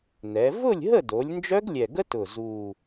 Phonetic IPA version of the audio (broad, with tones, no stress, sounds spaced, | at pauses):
n ɛ˩˧ v ʊ˥˨ lʲ ɦ ə˥˨ d o˩˧ lʲ n d͡ʒ œ˦˥ ɡ lʲ ɛ˨˩ ɡ ə˦˥ t ʊ˨˩ z u˨˩